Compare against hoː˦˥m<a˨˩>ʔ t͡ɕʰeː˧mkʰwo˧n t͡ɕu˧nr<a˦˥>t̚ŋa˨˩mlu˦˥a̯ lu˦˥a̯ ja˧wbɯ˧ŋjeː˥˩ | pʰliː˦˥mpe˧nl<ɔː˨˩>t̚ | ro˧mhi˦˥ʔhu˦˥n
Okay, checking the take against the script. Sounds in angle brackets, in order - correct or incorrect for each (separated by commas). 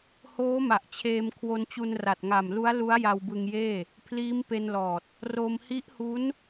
correct, incorrect, correct